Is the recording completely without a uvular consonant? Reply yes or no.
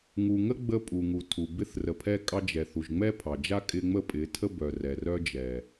yes